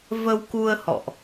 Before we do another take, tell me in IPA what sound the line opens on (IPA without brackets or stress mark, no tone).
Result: v